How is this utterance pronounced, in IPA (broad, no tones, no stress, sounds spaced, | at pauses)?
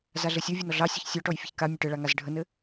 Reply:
z a ɮ ɘ sʲ o vʲ ɜ n ɔ ɮ ɑ sʲ ɔ ç sʲ ɔ ʈ ɔ j fʲ ə ç k a mʲ ɘ ʈ ɘ ɭ a ŋ a z ɖʱ ə n ɘ